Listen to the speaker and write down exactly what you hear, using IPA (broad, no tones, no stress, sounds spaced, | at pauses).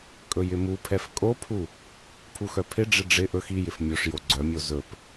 kʼ ɵ j ɪ m u pʰ ɛ f kʼ o pʰ u | pʰ u x œ pʰ ɪ ɖ͡ʐ ɪ ɖ͡ʐ ɪ ʔ ɵ x i j ɪ f mʲ o ʂ j o ɡ͡ǀ œ mʲ o z ɵ p